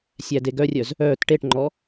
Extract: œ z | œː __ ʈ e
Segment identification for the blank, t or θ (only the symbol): t